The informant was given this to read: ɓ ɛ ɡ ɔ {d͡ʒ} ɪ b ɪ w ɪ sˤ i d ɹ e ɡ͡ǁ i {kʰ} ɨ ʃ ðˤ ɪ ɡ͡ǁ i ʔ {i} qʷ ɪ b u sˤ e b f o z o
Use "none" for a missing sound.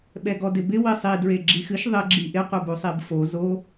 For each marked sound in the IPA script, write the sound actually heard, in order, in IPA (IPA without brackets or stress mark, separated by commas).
d, x, ɪ